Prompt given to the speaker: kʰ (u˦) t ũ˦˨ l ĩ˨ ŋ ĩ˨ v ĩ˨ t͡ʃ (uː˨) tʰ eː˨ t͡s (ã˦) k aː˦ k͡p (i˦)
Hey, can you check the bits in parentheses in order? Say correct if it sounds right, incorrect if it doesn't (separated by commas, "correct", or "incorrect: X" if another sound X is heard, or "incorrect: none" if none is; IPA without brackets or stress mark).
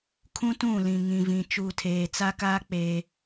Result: incorrect: ũ˦, correct, incorrect: a˦, incorrect: e˦